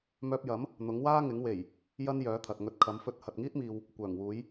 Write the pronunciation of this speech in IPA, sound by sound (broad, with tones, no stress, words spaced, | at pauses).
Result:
mœː˧p̚jɐ˨˥m | n̪ʊ˨˥ŋwaː˥ ŋɪ˨˥ŋwe˨˩j | jɐ˥n jœː˨˥t̪ʰɐ˨t̚ ŋɵ˧t̚ kʰɐ˨˥mfɵ˧t̚ hɐ˨t̚ŋiː˥t̚miː˨w | kʷœː˨˩ŋwuː˨˥j